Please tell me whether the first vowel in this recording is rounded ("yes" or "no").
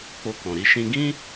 yes